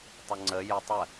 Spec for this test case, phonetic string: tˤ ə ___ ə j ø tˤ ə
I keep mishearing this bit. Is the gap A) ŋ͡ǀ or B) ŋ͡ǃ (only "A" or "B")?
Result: A